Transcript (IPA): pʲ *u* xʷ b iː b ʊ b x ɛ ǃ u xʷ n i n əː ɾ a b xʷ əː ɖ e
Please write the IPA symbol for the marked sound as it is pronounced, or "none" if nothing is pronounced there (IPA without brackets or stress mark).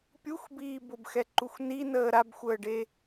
u